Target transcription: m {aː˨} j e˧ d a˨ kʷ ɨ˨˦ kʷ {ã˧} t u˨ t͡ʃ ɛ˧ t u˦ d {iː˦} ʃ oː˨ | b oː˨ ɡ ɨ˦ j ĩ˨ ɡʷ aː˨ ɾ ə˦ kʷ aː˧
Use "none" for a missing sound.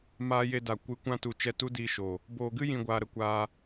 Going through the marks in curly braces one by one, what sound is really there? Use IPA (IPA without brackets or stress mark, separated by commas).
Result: aː˧, ã˧, iː˧